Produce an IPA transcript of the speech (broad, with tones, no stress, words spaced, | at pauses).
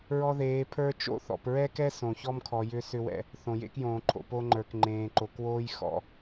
ɹɔ˦ðeː˨˦pʰə˞˦ t͡ʃo̰˦˨θɔ̰˨p ɹɛ˦kɛ˦ sõ˨çɔ˦mkʰɔ˨ jʏ˦ sʏ˦wɛ̰˨ | θõ˨jḛ˦kjõː˨ǃʰo̰˨ po˦ŋ͡ǃə˞˨k ŋ͡ǃẽː˨ǃo˨kwoː˦j xɔ̰˨